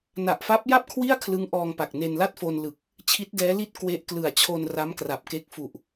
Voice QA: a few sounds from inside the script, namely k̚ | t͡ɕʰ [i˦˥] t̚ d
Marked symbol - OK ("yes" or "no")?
yes